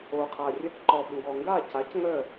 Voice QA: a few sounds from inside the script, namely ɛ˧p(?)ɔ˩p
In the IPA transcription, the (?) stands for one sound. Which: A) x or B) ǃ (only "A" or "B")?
B